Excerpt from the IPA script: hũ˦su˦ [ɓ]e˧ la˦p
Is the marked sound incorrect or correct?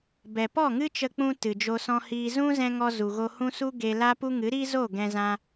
incorrect